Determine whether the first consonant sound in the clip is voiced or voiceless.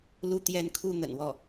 voiced